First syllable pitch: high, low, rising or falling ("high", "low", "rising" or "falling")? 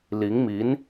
rising